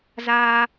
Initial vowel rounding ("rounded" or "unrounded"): unrounded